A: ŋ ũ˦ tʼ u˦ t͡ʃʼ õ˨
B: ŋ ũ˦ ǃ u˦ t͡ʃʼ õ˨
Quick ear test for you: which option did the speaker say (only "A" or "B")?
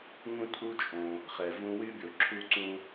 A